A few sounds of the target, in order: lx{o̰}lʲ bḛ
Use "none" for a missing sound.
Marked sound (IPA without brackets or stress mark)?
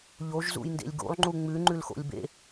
o̰